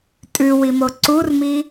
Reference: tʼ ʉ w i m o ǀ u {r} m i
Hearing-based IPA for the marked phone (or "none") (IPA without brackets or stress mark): r